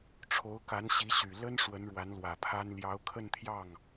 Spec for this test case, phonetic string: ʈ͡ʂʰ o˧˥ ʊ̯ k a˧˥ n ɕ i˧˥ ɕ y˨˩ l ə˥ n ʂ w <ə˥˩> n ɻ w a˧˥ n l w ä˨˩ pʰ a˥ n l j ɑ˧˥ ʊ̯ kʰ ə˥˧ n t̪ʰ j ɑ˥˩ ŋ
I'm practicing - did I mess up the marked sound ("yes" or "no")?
yes